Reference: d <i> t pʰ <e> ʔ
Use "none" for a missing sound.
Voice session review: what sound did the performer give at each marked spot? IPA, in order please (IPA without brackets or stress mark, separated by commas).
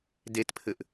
e, ɘ